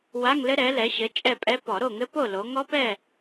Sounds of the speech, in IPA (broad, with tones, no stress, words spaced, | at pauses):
wa˧˥˧ŋlɘ˦˥ ɾɛ˩˥lɛ˩˥ɕɘ˩˥ t͡ʃʼɛ˥˨pʼɛ˧˥˧ pɔ˧˩˧ɾo˥˨ŋɘ˦˥po˥˨ lo˩˧ŋɔ˦˥pɛ˥˨